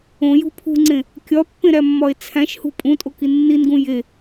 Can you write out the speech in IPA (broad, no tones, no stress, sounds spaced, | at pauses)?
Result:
õ j ṳ pʰ ṳ ŋ͡ǀ ẽ | kʲ ɒ pː ẽ ɾ æ mː ɒ e̯ t͡sʰ æ̃ ʃ h ṳ pʼ ũ tʼ o k i nː i n ɡ ũ j e